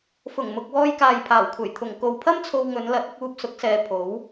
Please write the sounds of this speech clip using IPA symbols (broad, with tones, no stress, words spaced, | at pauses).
fʊ˨˩ŋmʊ˨k̚ wɔː˧jkaː˨jpʰaː˨˩wkʷʰɐ˨˩j t̪ʰʊ˨˩ŋ ko˨wpʰɐ˥m t͡sʰo˧wŋɵ˨˧nlɐ˨˥t̚ ɪ˧k̚uː˧p̚ sʊ˨˥k̚sɛː˨˧ pʰo˨˥w